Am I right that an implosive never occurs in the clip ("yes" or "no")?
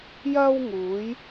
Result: yes